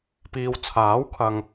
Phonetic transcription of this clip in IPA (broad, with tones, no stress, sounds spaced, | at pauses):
p iː˨ w t͡sʰ aː˨˥ w kʰ ɐ˨ ŋ